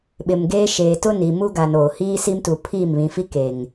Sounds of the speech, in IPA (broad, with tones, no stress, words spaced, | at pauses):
ɓɪ˨m ɡeː˦ʃeː˨ tʊ˦ni˨mu˦ ɡa˨noː˨hiː˦ si˦mtu˨pʰiː˦˨m βĩ˨fi˦ keː˨ŋ